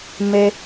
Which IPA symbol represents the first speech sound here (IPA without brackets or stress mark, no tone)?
m